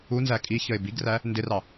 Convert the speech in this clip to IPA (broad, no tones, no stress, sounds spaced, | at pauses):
u n z æ kʼ i ç ə ɪ̯ b i ɡ r æ | n d ɪ r ɑ